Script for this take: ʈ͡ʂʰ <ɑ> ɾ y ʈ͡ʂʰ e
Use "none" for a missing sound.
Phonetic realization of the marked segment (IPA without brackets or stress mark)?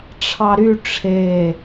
ɑ